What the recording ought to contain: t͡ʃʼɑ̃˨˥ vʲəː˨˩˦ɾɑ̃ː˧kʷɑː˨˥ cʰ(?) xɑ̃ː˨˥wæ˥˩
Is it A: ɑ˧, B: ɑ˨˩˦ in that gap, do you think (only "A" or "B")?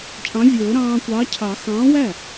B